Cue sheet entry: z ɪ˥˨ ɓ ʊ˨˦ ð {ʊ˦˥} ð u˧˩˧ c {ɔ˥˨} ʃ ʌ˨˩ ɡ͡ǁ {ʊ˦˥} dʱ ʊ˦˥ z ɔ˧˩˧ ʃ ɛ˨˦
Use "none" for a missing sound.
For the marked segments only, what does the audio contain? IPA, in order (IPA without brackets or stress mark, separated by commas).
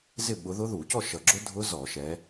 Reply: ʊ˦˥, ɔ˥˨, ʊ˦˥